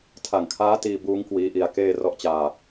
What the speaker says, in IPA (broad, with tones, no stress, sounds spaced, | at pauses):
tʰ a˨˩ ŋ kʰ aː˦˥ t iː˧ b uː˦˥ ŋ k w iː˦˥ ʔ i˧ a̯ k eː˥˩ r ɔ˦˥ ʔ t͡ɕ aː˧